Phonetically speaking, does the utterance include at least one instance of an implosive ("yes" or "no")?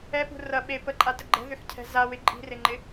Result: yes